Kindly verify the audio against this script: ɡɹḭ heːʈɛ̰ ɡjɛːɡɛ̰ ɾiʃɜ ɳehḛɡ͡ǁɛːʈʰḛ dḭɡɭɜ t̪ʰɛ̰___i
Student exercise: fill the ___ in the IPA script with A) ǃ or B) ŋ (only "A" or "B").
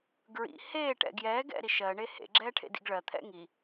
B